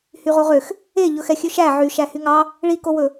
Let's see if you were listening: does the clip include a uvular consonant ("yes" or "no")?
yes